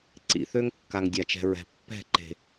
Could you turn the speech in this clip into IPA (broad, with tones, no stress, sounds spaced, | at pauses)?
ǀ ḭ˨ θ ø˦ ŋ kː a˨ ŋ dʲ a˨ t͡ʃ ɛ̤˨ ɹ ɛ̤˨ pː ɛ̤˦˨ ǃ e̤˨